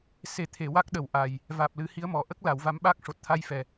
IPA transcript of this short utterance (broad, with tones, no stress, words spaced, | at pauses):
se˨˩ t̪ʰe˨˩˨wa˦˥k̚ɗə˨˩wʔa˨˩j | vaː˨˩p̚lɨ˨˩˦hi˧˥ə̯mɔ˨˩ ʔə˦˥k̚la˨˩˨w va˧˥mɓaː˦˥k̚ʂo˨˩t̚ t̪ʰa˧jfɛ˨˩˨